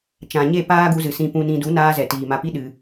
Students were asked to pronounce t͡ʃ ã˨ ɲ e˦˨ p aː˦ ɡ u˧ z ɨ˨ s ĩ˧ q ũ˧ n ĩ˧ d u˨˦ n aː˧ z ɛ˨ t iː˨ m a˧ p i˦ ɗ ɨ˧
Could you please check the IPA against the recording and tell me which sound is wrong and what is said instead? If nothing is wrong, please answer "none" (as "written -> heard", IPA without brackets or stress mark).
q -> p